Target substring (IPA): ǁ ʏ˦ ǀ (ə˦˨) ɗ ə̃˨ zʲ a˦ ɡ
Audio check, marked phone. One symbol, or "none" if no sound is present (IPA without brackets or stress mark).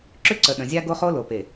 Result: ə˨